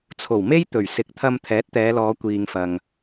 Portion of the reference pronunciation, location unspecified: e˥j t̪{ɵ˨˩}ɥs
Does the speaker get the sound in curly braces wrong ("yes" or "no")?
no